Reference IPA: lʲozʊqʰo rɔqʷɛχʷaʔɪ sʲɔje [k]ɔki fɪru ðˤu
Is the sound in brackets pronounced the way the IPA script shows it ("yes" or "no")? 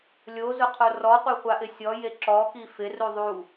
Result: no